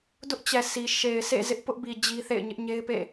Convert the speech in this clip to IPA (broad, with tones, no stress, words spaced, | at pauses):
dʊ˦ʔt͡ɕɛ˨ sʰi˨ ʃe˨ɪ̯sḛ˦˨ zɪ˦ʔpʊ˦ʔbi˨ d͡ʑi˦θḛ˦˨ɪ̯ ɲɪ˦ʔɲe˦ɪ̯pḛ˦˨